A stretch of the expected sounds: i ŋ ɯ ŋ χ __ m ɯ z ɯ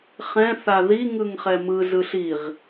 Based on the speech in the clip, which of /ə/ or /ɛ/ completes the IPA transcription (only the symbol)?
ɛ